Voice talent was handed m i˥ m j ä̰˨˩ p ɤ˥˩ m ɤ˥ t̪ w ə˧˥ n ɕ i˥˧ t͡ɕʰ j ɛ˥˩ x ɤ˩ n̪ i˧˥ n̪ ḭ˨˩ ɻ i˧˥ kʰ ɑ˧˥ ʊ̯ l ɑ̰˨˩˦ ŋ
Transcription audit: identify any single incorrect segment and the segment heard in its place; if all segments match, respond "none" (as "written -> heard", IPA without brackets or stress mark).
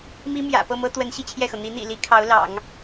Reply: ɻ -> l